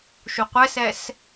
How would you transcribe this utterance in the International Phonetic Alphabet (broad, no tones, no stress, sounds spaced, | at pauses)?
ʃ u qʷ ɛ s ɛ s